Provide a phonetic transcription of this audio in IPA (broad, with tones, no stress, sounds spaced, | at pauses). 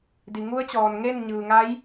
d i˩ ŋ u˧˥ ə̯ t͡ɕ ɔː˩ n ŋ e˥˨ n ɲ ɯː˩ ŋ a˧˥ j